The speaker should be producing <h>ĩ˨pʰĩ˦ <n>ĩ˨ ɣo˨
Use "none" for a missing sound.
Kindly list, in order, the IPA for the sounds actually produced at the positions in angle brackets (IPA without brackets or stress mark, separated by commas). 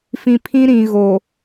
f, ɾ